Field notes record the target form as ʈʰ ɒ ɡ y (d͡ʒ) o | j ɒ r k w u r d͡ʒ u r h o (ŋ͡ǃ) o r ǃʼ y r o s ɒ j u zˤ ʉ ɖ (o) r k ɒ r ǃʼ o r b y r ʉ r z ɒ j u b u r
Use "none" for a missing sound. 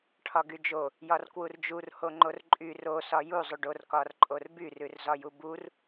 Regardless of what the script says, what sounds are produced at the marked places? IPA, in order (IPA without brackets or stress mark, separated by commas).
d͡ʒ, ŋ͡ǃ, o